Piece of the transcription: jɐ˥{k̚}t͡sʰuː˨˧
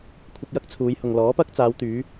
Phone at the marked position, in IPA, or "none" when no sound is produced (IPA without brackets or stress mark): k̚